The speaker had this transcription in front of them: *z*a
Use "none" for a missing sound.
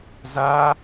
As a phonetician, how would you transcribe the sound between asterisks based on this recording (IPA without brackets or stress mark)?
z